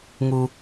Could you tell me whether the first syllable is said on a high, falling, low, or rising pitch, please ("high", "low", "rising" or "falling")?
high